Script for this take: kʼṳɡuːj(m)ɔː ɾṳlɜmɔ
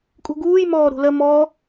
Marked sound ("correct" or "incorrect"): correct